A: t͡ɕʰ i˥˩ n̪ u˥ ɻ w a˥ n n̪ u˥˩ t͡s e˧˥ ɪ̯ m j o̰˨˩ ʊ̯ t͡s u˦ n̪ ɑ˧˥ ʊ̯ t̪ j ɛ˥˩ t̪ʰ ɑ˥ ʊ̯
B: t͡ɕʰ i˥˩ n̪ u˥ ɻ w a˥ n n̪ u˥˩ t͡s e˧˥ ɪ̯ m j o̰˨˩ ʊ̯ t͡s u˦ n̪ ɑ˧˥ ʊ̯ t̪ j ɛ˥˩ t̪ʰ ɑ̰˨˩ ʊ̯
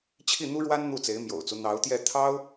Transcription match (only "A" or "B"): A